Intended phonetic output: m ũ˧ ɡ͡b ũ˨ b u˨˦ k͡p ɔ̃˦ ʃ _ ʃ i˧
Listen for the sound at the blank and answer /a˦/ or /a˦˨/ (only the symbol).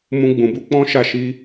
a˦˨